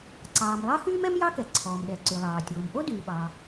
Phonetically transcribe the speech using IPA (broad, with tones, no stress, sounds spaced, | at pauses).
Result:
ǀ ɑː˩ m lˠ ɑ˥ x yː˥ m ɛ˥ m j ɑ˥ k ɛ˩ ǀʰ ɔː˩ m ɗ ɛ˩ ǀ y˩ lˠ ɑː˩ tʲ oː˩ m ʔ o˥ d yː˩ ɓ ɑː˩